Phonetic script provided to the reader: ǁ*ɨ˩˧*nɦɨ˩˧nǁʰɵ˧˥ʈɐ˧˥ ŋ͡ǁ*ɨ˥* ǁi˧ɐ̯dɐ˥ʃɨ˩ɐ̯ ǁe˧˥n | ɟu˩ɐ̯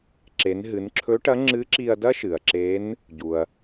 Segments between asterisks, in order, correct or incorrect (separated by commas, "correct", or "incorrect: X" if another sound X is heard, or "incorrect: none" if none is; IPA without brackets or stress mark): incorrect: e˩˧, incorrect: ɨ˧˥